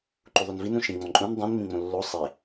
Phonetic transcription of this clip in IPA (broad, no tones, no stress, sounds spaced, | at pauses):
ǃ u ðˤ o n v i n ũ ʃ ĩ ŋ͡m ɔ̃ ǃʼ ũ n dˤ ĩ n m ĩ ŋ͡m õ lː o sˤ e